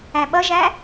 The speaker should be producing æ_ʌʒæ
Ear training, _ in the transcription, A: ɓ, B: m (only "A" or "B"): A